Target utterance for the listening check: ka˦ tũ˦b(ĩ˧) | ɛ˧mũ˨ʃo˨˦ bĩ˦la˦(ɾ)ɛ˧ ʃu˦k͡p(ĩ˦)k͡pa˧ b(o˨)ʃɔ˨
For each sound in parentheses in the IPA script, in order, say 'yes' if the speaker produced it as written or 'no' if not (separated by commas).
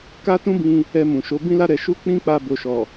yes, yes, yes, yes